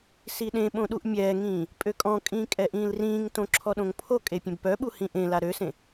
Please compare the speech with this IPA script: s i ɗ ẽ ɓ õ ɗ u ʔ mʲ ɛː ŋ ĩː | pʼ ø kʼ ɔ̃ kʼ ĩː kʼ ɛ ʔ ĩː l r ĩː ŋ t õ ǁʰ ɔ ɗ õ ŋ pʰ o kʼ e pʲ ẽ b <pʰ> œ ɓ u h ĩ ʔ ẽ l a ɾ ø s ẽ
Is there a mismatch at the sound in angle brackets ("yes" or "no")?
yes